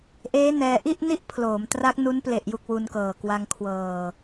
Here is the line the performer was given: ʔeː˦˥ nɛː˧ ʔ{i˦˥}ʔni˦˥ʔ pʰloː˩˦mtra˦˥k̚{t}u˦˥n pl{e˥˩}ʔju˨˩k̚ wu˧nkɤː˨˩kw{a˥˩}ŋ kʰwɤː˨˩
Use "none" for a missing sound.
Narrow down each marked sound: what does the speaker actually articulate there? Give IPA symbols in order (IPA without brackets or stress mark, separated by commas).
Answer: i˥˩, n, e˨˩, a˧